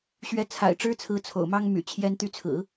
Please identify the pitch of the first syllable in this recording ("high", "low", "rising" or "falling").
rising